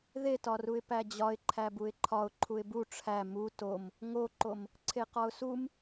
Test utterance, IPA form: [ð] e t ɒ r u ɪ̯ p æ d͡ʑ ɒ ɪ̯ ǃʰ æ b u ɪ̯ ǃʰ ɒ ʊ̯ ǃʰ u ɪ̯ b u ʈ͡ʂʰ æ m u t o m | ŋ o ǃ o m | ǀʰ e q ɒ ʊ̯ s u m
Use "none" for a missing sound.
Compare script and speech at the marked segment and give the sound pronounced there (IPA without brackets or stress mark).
ð